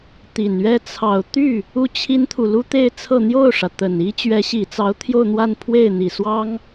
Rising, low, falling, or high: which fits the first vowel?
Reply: low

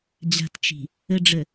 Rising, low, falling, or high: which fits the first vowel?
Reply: low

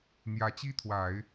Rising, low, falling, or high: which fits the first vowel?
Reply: rising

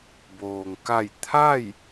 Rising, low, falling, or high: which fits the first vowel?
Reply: low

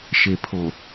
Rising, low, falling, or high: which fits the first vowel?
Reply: low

